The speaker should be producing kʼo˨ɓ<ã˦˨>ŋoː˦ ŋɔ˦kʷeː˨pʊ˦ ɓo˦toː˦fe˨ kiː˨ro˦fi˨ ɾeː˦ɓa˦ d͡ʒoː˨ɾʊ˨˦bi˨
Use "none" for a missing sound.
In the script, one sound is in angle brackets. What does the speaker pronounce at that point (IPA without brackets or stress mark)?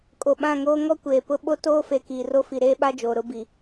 ã˦˨